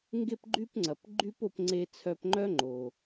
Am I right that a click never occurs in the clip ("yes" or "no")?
no